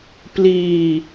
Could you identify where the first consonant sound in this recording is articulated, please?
labial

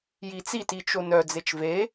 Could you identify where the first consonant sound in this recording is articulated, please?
palatal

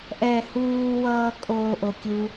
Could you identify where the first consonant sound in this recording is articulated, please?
glottal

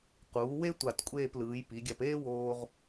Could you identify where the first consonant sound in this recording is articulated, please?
uvular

